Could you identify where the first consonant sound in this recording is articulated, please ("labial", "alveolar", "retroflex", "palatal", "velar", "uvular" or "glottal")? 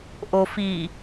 glottal